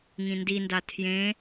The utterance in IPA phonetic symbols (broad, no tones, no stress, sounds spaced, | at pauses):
ŋ ĩ n d i n d a tʰ j ẽ